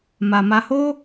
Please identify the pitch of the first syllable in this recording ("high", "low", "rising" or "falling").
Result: low